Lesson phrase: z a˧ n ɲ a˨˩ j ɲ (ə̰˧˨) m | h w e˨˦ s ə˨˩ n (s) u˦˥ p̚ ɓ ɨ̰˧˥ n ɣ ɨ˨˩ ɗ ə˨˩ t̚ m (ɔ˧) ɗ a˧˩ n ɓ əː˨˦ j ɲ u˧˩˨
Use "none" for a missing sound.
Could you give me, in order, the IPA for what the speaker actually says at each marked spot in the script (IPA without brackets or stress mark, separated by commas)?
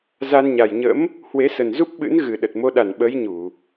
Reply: ə̰˧˥, z, o˧